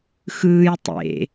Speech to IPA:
xɯːj tˤḛ

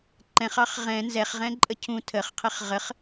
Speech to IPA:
ǃɛ̃χɑχ ʁɛ̃ nzɛχʁɛ̃ǃʼə cʰũ tʰəχqʰɪχ ʁəχ

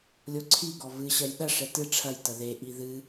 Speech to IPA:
lʲoǀʰiɡɔ vɨɕɐj ɗɐʂɛ tɨ ʈ͡ʂʰɐjtɐ ðeʔi ðɨ

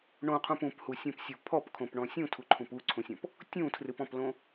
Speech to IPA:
ɳõqʰũp ũphusʲõpsʲo pʰɔpkʰõpɳɔ̃ sʲũtʰuǃʰũp uǀʰũsʲɔ̃p | tʲũtʰrɨpɔ̃plõ

